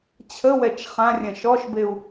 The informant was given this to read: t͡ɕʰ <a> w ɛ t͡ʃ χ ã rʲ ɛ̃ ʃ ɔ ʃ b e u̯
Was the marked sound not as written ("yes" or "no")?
yes